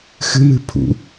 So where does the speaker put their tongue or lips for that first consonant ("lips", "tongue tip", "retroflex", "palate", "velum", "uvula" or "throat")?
velum